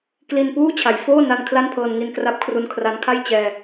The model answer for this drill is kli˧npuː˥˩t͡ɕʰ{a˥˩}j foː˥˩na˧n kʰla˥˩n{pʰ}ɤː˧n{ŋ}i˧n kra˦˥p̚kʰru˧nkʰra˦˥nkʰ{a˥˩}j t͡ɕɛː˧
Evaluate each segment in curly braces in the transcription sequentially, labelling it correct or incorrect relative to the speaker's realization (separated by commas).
incorrect, correct, correct, correct